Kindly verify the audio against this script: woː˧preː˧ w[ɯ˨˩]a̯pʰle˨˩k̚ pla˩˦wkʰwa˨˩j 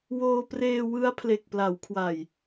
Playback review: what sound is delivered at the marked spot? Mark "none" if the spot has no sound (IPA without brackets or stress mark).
ɯ˦˥